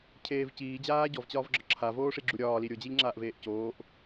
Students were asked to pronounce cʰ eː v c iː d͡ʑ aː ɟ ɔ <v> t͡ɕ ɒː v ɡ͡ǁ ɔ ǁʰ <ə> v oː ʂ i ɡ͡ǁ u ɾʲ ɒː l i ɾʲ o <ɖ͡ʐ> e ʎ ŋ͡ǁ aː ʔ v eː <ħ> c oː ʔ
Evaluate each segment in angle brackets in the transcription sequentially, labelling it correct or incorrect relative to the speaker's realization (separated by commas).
correct, incorrect, incorrect, incorrect